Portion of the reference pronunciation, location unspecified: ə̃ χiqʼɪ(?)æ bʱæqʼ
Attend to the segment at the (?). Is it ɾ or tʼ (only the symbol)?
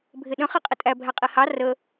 tʼ